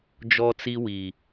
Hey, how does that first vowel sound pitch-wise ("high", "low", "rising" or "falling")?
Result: high